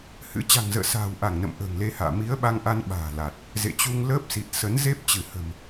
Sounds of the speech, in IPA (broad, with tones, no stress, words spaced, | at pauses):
hɨ̰˧˥ t͡ɕa̤˨˩ŋzə̰ː˧˨ sa̤ː˨˩wʔa˧˩ŋnə̰˧˨m ʔə̤ː˨˩ŋle˧ha̰ː˧˨ mi˨˦ə̯ ɓa˧ŋʔa˧n ɓa̤ː˨˩la˨˩t̚ | zḛ˧˨t͡ɕu˧ŋ ləː˦˥p̚si˨˩t̚ sə˨˦nze˦˥p̚ t͡ɕɨ˧˩ hə̤˨˩m